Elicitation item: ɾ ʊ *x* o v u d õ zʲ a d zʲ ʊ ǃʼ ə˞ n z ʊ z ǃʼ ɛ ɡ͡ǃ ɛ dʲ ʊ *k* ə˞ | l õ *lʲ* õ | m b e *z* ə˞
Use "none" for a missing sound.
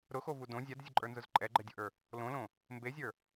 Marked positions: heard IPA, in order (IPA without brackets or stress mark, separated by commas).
x, ʔ, l, zʲ